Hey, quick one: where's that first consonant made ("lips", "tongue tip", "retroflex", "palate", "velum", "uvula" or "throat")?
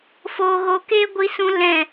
lips